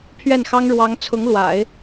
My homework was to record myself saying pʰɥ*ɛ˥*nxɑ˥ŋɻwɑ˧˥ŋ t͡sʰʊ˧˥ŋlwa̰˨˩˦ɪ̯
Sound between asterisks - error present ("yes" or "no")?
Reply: yes